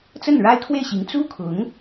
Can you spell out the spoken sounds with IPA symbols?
t͡s ə˥˩ n ɻ a˥ ɪ̯ kʰ w e˥˩ ɪ̯ ɕ i˧˥ ŋ t͡s u˥ kʰ ʊ˧˥ ŋ

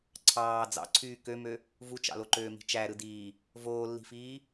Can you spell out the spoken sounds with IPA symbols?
ǀʰ ɑː d͡z ɑ̰ ǀʰ yː k ø m ø | v u t͡ʃ ɑ̰ l o ǃ øː m i̤ t͡ʃ æ ɾ ɯ d iː | v oː lː i̤ f iː

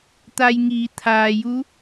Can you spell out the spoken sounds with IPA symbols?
t̪ a˧ j ŋ iː˩˧ t̪ʰ aː˩ j u˧˥

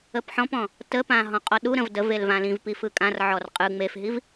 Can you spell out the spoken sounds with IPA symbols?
ə p ħ ɔ̃ p ɔ̃ | t ə p ã ɦ ɔ̃ qʼ ɔ ɗ u ɾ ə̃ v d ə v e l v ã l ĩ v p i f ɯ kʼ ã r ʕ ɔ r qʼ ɯ ŋ͡m e f ɦ i v

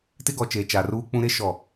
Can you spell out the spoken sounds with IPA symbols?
t ɪ˦ ɡ ɔ˨ t͡ʃ eː˨ t͡ʃ a˨ r uː˦ k͡p ũ˦ ɾ e˦ ʃ ɔ˦˨

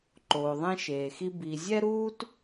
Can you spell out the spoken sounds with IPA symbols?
ǃ oː˨ ðˤ ẽ˦ ʃ eː˨ x i˦ b i˨ zʲ ɛ˥ ɾ uː˥ t

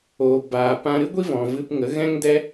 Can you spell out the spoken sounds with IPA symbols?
oː˨ b aː˨ p ã˧ ɾ ɨ˦ ɡʷ i˦ v ɔ̃˨ v ɨ˧ p ŋ ə˨˦ ɣ ɛ̃˦ ŋ d ɛ˦

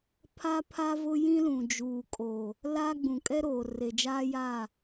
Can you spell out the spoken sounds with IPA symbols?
pʰ a˦ pʰ a˦ v ʊ˦ j ĩ˦ l ũ˨ d͡ʒ uː˨ kʼ o˨ | l a˦ ɡ͡b ũ˨ kʼ ɛ˦ ɾ oː˨ r e˨ d͡ʒ aː˦ j a˦˨

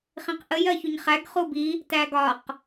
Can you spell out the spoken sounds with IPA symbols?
χ ĩ q ʔ ə j ɜ ç u ɲ χ æ ɡ χ u b i | t æ ɡ ɒ q

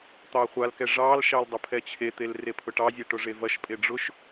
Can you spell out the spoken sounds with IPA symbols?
t̪ ɑ χʷ a l k ɛ ʐ ɑ l ʃ ɑ l dˤ ʊ pʰ ɛ t͡ɕʰ e t̪ e l r e pʰ ʊ ʈ ɑ zʲ e ʈ ʊ ʐ e v ɐ ʃ pʼ e ɖ͡ʐ ʊ ʃ

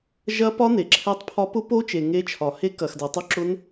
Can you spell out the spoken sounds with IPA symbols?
ʒ ɐ˦˥ p ɒ˦˥ n e˨ ǁʰ ɛ˦˥ tˤ pʰ ɒ˦˥ p ʊ˦˥ p o˦˥ t͡ʃ e˨ ŋ e˦˥ t͡ʃʰ ɒ˨ h e˦˥ k ɐ˨ x d ɛ˨ tˤ u˦˥ ǁ ʊ˦˥ n

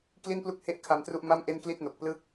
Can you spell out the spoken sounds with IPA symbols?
k l i˥˩ n p l u˥˩ k̚ h e˥˩ ʔ kʰ a˧ m t r u˥˩ ʔ m a˥˩ m ʔ e˥˩ n k l i˥˩ t̚ n o˨˩ k̚ p l ɯ˥˩ k̚

